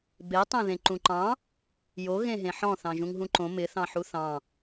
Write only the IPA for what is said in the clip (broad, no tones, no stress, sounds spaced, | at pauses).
b e tˤ ẽ ð ẽ ǃ ũ ǃ ɑ̃ | j o ɣ ẽ ɦ ẽ ħ ɔ̃ θ ɑ̃ ʒ ũ ŋ ɦ ũ ǃ õ m ɪ θ ɑ̃ ħ u θ ɑ̃